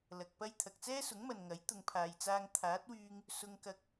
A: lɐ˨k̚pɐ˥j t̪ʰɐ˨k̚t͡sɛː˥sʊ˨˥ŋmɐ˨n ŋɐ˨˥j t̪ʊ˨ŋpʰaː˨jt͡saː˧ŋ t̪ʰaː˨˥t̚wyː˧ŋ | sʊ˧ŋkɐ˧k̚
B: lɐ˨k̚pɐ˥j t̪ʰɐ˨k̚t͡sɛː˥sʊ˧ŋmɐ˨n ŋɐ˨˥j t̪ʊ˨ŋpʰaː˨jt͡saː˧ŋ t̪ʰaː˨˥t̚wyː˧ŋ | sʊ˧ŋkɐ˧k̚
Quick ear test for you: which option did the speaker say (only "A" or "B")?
A